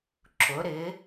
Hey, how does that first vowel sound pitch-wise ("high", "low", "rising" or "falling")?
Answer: rising